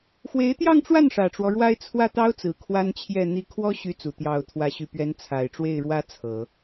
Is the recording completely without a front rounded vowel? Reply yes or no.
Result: no